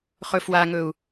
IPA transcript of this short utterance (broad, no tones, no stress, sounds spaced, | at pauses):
χ ɵ f w a ŋ ɵ u̯